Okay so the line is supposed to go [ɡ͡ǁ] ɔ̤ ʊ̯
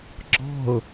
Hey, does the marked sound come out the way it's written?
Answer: yes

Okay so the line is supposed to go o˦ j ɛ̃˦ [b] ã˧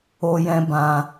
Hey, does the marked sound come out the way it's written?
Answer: yes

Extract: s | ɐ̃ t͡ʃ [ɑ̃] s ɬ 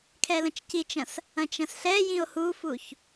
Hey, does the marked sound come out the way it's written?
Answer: no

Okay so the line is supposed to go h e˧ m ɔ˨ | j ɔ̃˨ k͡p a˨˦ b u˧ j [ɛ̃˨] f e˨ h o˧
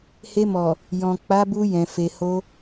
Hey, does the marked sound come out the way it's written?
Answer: yes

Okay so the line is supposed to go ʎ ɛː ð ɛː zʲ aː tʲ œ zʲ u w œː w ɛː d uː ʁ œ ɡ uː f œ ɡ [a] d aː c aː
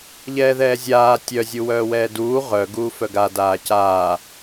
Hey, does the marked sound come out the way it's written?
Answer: yes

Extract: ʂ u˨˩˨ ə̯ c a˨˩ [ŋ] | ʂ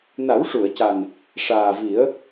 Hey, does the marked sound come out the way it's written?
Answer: no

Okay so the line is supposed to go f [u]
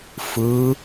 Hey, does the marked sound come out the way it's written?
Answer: no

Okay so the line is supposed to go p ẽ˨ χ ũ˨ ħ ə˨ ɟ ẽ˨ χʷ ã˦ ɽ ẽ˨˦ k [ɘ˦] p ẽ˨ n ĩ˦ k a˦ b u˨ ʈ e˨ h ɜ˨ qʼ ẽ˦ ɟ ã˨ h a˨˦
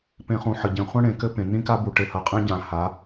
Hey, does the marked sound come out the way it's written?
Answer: yes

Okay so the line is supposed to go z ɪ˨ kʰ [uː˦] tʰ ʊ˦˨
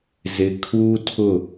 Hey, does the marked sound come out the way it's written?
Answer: yes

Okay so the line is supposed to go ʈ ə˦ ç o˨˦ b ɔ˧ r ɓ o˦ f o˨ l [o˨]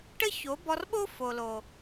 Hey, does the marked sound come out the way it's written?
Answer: yes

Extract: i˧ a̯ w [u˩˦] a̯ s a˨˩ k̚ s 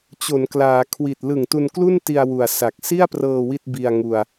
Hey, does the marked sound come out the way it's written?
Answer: no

